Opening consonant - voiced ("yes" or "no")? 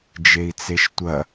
yes